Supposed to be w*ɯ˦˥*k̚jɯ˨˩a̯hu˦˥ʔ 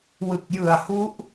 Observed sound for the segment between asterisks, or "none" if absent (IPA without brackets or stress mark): ɯ˨˩